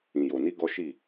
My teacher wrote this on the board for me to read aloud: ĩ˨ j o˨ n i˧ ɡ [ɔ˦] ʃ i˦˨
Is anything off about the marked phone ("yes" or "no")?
no